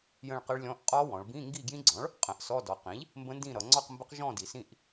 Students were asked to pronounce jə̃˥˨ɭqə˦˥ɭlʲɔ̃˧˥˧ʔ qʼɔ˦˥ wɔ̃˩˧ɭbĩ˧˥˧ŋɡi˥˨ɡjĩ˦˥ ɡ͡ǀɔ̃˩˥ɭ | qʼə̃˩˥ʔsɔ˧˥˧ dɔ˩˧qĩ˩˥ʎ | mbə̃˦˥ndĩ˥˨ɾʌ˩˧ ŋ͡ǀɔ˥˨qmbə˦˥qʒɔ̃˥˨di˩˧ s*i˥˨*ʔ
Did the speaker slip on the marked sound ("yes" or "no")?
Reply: yes